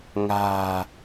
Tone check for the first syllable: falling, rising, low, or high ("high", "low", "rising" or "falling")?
low